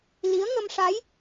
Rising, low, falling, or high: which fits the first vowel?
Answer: rising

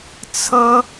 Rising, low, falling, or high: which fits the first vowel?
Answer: high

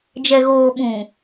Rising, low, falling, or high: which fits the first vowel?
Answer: low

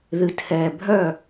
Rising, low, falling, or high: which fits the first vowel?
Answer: low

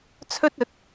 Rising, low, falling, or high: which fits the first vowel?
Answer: high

